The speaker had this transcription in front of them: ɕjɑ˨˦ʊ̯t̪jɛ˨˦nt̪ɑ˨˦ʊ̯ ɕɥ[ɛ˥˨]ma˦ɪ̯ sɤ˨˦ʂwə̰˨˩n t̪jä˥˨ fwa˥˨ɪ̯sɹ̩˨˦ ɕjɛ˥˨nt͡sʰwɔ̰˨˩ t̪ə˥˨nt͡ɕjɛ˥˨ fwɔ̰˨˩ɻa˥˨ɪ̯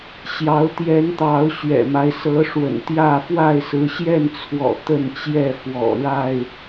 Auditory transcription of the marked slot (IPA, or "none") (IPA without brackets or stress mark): ɛ̰˨˩